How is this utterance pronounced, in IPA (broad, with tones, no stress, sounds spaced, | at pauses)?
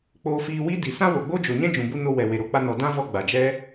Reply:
k͡p oː˧ f iː˧ w i˦ d i˨ s ã˦ w o˨ ɡ͡b o˦ d͡ʒ o˨ ɲ ɛ̃˦ d͡ʒ ũ˨ b u˧ n o˧ w ɛ˨ w e˨ ɾ o˦ k͡p a˧ n ɔ˨ d ã˦ v ɔ˧ ɡ͡b a˨ d͡ʒ ɛ˦